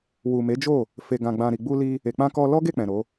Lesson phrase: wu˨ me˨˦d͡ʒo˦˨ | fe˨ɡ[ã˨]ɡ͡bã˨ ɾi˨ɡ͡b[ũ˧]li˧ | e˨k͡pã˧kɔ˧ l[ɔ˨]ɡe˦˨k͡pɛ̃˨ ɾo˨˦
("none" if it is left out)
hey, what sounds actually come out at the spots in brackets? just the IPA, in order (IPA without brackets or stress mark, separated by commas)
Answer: ã˨, u˧, ɔ˦